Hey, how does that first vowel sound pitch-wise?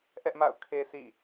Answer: high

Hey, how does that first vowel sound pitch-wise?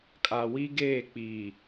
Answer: low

